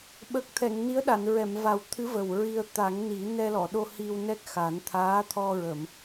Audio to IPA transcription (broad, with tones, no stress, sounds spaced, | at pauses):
ɓ ə˨˩ k̚ t̪ʰ ɛ˨˩˨ ŋ n i˧˥ ə̯ ɗ a˨˩˨ n ɹ ɛ˨˩˨ m v a˨˩ w t̪ʰ ɨ˧˥ v ə˨˩ w ɹ i˧ ə̯ t̪ a˨˩˦ ŋ n i˨˩˦ n ɛ˧ l ɔ˨˩˨ ɗ o˧ h i˧ w n ɛ˦˥ k̚ x a˨˩˦ n t̪ʰ aː˧˥ t̪ʰ ɔ˧ ɹ ə˨˩˨ m